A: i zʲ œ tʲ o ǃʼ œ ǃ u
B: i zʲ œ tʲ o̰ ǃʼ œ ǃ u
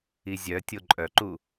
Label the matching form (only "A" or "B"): A